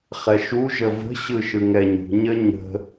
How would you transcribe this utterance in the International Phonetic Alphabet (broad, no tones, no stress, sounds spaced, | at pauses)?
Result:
χ ɛ ʃ u ʒ ə v ə̤ ɕ ɯ ʃ ɯ ŋ ɛ ɲ ṳ ɲ ə ɲ ə̤